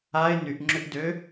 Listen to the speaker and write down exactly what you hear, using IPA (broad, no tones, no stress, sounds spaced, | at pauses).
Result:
a ɪ̯ n y ʔ ŋ͡ǁ ʏ ʔ d ø